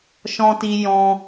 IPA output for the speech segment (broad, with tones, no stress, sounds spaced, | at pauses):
ʃ ɔ̃˧ t i˧ j ɔ̃˧